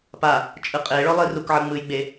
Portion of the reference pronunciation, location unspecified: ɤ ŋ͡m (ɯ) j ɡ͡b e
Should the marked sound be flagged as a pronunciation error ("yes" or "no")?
no